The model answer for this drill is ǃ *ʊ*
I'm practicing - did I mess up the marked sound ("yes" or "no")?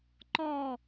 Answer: yes